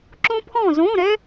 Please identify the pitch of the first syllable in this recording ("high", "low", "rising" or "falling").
high